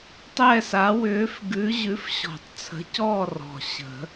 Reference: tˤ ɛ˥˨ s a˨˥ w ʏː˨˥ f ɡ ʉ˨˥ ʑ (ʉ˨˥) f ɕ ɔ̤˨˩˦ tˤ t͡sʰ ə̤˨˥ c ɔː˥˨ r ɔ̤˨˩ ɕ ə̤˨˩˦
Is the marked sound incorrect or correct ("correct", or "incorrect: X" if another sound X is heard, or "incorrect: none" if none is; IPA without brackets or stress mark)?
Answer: correct